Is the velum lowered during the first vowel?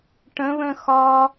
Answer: yes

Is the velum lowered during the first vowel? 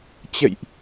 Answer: no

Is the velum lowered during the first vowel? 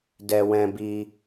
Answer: no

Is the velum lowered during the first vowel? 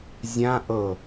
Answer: yes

